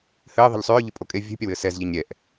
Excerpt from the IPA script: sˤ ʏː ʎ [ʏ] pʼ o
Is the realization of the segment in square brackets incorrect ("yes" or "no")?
no